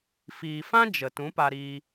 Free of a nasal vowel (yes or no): no